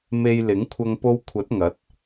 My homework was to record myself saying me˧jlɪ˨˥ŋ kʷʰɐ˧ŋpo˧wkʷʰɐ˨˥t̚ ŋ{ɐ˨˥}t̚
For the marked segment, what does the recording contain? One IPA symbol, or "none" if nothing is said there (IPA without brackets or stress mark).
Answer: ɐ˨˥